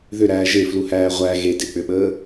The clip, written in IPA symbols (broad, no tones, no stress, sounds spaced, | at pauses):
ð ʏ ɾ æː ʒ e f l u h æː ʁʷ æ ɣ e d e k͡p ʏ ɓ əː